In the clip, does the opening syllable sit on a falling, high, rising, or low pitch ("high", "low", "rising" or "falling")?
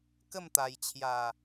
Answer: falling